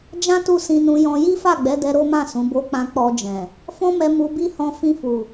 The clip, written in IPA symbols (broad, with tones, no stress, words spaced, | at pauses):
d͡ʒã˦ tu˦˨sĩ˧nũ˧jɔ̃˧ ji˦fa˦˨ɡ͡bɛ˨˦dɛ˧ ɾo˦mã˦˨ sũ˨˦bo˦k͡pã˦ k͡pɔ˧d͡ʒɛ̃˨ | fɔ̃˦mɛ˧ mu˧bi˦hɔ̃˧ fĩ˧fu˨